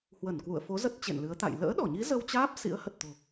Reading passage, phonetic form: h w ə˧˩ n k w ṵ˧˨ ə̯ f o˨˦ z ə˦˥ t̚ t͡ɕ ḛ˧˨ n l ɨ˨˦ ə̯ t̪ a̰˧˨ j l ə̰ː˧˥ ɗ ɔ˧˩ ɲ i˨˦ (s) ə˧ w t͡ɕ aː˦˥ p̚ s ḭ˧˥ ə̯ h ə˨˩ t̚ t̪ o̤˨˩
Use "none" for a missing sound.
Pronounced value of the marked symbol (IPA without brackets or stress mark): z